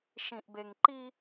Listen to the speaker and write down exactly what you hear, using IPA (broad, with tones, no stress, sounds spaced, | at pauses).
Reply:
ʃ ĩ˨ ʔ b e˨ ŋ ǃ i˦